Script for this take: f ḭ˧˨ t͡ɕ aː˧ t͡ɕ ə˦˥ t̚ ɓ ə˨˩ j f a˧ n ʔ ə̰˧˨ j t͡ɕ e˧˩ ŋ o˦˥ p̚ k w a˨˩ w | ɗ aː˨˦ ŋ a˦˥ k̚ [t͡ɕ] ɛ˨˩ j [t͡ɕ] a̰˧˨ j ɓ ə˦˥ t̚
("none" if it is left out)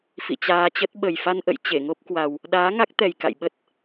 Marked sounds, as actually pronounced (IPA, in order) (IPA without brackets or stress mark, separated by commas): t̪, k